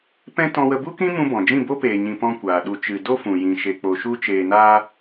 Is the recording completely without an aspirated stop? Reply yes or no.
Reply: yes